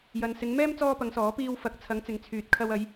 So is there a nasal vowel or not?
no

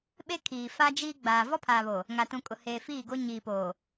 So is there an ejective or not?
yes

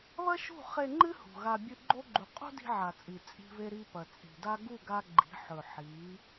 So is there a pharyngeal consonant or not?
yes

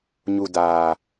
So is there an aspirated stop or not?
no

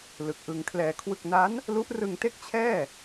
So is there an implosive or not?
no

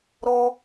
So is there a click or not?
no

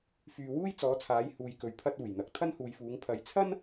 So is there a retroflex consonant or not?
no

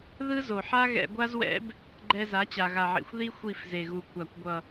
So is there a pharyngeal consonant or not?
yes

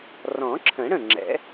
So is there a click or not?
yes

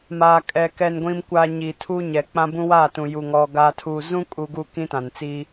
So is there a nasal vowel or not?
yes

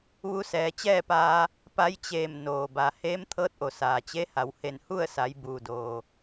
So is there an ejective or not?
no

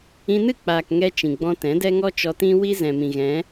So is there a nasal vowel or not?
yes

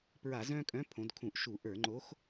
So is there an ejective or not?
yes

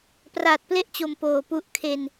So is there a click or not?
no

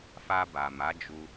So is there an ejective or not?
no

